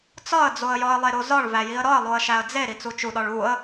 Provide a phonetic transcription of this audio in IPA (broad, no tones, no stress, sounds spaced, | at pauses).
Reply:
t͡s ɒ ə̯ d͡z o ə̯ j ɒ ə̯ lˠ e ɾ o z ɒ ɭ v æ j i ə̯ ɾ ɒ ə̯ lˠ o ə̯ ʃ æ ə̯ d͡z e ɾ i t͡s u t͡ʃ u ɗ ɒ ɭ u ə̯